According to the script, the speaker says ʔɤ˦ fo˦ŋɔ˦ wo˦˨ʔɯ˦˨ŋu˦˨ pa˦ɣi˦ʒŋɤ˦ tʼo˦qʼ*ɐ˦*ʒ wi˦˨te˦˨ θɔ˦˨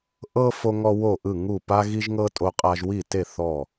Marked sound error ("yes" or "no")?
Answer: yes